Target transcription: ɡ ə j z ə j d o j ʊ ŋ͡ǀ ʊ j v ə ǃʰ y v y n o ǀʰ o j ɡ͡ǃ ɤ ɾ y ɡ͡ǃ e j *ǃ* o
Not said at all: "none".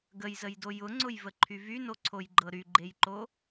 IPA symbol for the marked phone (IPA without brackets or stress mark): ǃ